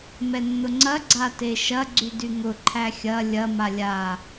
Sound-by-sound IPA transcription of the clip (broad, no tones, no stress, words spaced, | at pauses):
mɛnːʊŋ͡ǀɐ ɡ͡ǀateʃɐ ɡ͡ǀydyŋʊ ǃʰæxʲɐ lʲɐ malʲa